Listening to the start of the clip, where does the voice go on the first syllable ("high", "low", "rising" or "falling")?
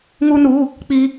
high